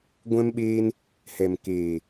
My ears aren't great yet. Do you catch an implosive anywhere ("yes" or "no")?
yes